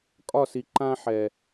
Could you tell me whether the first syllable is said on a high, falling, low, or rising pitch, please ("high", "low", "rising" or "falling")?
falling